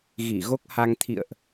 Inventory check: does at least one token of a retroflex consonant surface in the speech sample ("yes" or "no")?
no